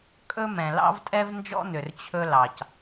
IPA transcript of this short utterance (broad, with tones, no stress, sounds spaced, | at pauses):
kʼ ɵ˥ m ɛ̃˨ l ɑ̰˥ v tʼ ɛ˥ v n d͡ʒ ɔ̰˥ n̪ ʏ˨ r t͡ɕʰ ɵ˥ l ɑ˨ c